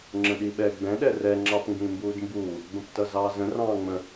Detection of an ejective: absent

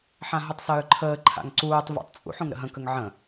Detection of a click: present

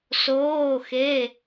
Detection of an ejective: absent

